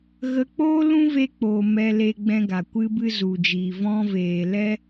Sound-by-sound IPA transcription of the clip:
ɣ ə˧ k͡p oː˦ l ũ˦ v e˧ k͡p oː˨ m ɛ˧ l e˧ ɡ͡b ɛ̃˧ ɡ a˨ kʷ ɨ˧ b ɨ˧ z u˨ d͡ʒ iː˨ v ɔ̃˦ v eː˧ l ɛ˦

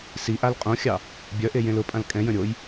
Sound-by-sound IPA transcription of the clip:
s i ʔ a l qʼ õ xʲ ɑ | bʲ œ ʔ e j ẽ l ʊ pʼ ã l kʼ ɛ̃ j ə̃ ɾʲ o j

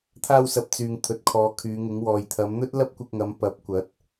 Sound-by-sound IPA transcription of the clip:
t̪ʰ aː˧ w s ɐ˨ p̚ t͡s yː˨ ŋ t̪ʰ ɵ˨˥ t̚ kʰ ɔː˨˧ kʰ yː˨˧ ŋ ɪ˨˥ ŋ w ɔː˨ j t̪ʰ ɐ˨˧ m n̪ ɵ˥ t̚ l ɐ˥ p̚ kʷ ɪ˧ k̚ ŋ ɐ˨˧ m p ɐ˨˥ p̚ kʷ ɐ˨˥ t̚

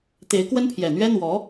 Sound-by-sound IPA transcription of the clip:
t̪ e˧˥ ɪ̯ k w ə˥ n pʰ j ɛ˨˩ n̪ ɥ ɛ˥ n̪ w ɔ˧˥

